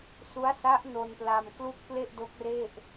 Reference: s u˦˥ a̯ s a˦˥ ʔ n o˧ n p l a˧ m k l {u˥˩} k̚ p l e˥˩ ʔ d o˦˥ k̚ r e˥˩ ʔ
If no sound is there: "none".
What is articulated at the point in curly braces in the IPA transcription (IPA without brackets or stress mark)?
u˥˩